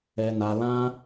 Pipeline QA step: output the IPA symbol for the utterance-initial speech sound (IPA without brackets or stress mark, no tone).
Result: ɛ